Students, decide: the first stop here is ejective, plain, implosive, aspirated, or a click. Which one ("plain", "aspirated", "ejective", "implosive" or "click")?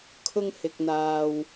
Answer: aspirated